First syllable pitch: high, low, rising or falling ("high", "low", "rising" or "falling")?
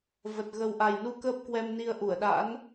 low